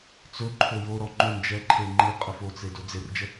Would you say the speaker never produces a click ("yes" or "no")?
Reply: no